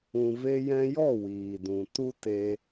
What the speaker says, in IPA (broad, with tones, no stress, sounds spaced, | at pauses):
ũ˨ v e˧ j ɛ̃˧ j ɔ˦˨ w iː˨ d ũ˨ t u˦ t e˧